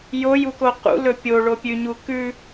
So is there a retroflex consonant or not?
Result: yes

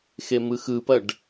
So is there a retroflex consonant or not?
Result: yes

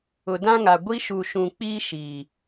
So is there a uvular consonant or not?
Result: no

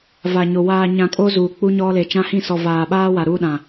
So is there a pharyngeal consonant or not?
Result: no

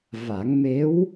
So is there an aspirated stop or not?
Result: no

